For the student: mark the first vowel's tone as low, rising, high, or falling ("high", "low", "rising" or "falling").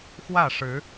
falling